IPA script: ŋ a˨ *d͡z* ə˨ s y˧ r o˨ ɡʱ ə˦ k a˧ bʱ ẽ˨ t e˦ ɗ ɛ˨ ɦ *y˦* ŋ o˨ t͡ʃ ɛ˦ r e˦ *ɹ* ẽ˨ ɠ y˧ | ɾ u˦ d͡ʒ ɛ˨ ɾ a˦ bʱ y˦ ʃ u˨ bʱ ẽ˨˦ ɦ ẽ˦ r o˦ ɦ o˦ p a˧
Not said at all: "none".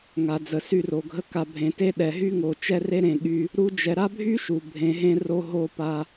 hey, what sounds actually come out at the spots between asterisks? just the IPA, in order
d͡z, y˦, ɾ

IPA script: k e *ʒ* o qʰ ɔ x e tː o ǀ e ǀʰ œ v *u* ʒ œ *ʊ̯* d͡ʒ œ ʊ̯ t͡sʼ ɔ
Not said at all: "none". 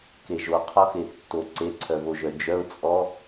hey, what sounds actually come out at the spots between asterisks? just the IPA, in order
ʒ, o, none

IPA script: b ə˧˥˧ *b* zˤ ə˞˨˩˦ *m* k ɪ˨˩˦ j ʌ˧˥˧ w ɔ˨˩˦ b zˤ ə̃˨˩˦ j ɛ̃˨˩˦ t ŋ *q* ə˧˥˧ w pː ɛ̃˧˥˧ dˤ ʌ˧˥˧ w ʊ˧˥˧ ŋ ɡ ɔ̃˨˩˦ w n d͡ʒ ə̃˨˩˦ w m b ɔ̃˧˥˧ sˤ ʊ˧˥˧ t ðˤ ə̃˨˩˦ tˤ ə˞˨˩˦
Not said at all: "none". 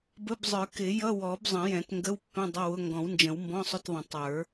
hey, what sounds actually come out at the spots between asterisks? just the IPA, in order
b, none, ɡ

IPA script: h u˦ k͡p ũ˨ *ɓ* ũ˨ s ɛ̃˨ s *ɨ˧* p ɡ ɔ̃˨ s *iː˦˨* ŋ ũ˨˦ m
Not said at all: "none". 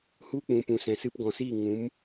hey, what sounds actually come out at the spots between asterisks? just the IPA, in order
p, ɨ˧, iː˦˨

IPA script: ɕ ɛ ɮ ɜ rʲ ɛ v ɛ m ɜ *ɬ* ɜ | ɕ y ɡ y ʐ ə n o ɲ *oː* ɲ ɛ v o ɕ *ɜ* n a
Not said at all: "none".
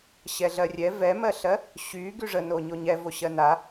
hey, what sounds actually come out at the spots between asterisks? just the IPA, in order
ɬ, o, ɜ

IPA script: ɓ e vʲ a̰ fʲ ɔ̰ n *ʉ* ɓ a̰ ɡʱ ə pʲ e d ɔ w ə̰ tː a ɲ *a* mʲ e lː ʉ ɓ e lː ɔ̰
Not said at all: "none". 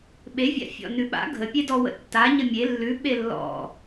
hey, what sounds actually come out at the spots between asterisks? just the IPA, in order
ʉ, ə

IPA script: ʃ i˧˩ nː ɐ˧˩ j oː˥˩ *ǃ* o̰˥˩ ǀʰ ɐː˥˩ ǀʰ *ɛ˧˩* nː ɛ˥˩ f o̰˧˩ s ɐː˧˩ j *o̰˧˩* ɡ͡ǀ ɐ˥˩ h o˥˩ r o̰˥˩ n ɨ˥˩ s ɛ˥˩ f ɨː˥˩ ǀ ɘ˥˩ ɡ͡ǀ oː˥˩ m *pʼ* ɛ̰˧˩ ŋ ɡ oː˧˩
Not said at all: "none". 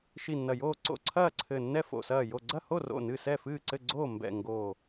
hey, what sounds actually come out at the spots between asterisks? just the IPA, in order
ǀ, ɘ˧˩, o˧˩, b

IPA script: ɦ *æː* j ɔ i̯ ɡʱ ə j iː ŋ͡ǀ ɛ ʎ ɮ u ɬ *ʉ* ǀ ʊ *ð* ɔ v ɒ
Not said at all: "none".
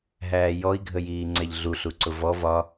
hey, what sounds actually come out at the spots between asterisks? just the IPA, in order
æː, u, v

